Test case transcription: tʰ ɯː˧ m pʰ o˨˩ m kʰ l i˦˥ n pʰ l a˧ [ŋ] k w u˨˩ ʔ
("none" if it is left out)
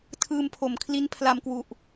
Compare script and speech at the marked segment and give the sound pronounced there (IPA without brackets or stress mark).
m